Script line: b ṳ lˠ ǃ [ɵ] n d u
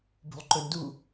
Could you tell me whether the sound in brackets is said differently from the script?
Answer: no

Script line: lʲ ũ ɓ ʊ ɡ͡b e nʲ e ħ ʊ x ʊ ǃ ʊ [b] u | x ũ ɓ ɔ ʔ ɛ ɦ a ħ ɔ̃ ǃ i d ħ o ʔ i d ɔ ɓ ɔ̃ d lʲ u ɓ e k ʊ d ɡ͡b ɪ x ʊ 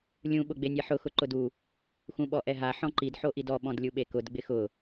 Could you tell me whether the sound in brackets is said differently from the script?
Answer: yes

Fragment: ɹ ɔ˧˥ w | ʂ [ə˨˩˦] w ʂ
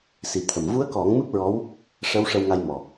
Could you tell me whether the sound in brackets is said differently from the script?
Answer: yes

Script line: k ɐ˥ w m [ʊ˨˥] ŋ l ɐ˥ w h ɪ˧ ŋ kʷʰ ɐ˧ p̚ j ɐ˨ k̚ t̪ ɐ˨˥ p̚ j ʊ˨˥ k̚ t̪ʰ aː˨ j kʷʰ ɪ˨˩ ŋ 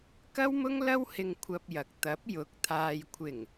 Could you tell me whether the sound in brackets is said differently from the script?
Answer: yes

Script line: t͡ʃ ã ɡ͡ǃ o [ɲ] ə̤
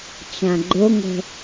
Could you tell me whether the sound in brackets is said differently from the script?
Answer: yes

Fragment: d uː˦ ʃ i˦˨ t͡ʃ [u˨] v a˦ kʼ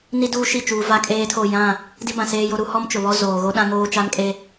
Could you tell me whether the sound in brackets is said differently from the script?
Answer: yes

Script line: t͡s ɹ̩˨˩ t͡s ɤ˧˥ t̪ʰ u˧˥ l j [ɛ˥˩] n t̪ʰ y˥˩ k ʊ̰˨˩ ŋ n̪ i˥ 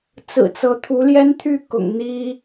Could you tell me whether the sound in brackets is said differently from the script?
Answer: yes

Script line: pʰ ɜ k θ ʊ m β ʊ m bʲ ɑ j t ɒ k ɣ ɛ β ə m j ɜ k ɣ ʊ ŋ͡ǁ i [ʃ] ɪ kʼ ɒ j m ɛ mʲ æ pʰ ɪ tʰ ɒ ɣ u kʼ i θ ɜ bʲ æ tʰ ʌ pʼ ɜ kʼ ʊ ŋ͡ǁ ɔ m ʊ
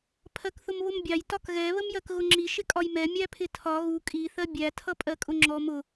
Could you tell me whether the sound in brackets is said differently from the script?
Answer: no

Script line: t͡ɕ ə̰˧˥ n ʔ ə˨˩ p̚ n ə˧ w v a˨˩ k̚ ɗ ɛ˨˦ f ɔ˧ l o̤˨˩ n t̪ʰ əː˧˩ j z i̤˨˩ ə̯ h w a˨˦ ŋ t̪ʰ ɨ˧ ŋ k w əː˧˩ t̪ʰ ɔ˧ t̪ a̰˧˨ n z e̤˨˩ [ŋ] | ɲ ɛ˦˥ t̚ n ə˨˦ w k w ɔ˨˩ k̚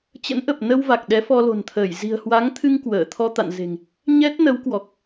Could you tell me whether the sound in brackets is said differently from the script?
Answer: no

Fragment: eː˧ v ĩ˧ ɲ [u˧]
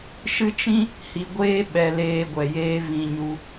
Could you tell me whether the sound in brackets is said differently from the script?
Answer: no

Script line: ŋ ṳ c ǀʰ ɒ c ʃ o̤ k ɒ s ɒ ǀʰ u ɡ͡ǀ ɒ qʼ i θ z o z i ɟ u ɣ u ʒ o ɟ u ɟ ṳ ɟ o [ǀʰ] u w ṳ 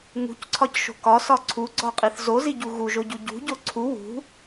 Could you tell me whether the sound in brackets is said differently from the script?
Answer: no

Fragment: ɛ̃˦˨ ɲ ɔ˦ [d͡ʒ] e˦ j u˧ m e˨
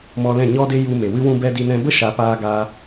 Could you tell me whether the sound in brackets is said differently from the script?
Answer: yes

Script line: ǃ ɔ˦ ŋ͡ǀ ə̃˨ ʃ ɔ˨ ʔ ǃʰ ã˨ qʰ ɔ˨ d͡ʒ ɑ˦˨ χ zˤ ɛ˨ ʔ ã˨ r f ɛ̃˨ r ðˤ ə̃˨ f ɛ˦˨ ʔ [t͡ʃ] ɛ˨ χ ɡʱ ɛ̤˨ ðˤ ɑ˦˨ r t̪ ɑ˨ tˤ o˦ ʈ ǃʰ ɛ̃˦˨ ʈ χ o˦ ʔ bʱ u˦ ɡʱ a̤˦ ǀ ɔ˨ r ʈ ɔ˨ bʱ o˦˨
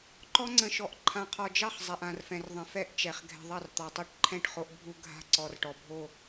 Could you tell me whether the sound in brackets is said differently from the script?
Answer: no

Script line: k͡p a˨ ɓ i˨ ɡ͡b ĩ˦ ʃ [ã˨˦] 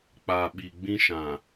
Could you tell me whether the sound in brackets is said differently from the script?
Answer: yes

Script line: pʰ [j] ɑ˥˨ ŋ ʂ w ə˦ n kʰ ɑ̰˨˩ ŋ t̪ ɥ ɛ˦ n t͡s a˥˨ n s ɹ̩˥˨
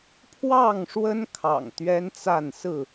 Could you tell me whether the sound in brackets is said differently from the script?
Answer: yes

